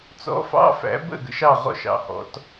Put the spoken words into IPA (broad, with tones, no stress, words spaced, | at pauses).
t͡sɔ̰˧˥˧fɑ̰˧˥˧fæ̰˨˦ bə̰˥˩ɡə̰˨˦ʃ ɑ˥˩ʁɔ̰˥˩ʃɑ̰˨˦hɔ̰˨˦t